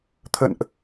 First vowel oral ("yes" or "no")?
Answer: yes